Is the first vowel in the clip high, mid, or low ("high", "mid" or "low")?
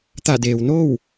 low